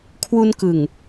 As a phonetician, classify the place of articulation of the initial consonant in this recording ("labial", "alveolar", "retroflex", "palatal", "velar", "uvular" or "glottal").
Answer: velar